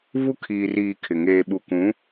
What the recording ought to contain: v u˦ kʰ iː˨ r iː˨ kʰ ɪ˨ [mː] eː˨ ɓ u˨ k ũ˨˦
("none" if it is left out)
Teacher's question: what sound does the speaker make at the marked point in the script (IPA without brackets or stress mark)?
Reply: ŋ